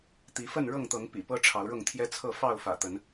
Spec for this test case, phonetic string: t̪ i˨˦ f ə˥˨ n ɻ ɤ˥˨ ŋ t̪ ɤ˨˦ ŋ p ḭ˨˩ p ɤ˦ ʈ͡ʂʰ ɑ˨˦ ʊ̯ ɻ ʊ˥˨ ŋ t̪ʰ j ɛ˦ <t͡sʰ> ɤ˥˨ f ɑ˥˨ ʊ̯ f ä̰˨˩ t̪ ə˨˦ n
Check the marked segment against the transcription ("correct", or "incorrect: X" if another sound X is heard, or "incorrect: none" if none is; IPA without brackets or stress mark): correct